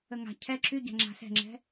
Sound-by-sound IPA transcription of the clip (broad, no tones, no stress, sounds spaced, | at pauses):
ə ŋ a̤ cʰ ɛ ǁ y ɟ a̤ ŋ͡ǁ a̤ s ɛ̤ ŋ͡ǁ ɛ̤